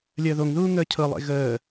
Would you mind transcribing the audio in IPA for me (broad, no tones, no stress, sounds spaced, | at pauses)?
lʲ əː ð o ŋ ð uː ŋ əː cʰ ɤ lˠ ḛ ɣ əː